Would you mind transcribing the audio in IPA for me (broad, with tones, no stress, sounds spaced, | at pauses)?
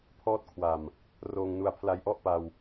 pʰ ɔː˦˥ t̚ kʰ w a˨˩ m | r oː˧ ŋ n u˧ a̯ pʰ l a˧ j ʔ ɔ˥˩ ʔ p a˧ w